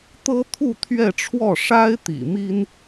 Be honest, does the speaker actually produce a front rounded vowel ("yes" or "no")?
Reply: no